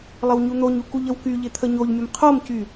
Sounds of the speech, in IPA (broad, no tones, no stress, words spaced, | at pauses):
lˠəwɲun̪oɲu kuʎəwkyʎɪ t̪ʰəɲoʎmʲəm qʰomcy